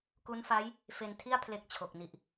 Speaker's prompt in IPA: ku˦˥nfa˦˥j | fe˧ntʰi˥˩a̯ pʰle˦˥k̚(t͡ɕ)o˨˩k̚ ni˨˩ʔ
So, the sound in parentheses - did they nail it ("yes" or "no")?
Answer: no